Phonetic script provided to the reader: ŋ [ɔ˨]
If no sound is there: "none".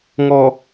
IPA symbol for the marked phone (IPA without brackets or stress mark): ɔ˨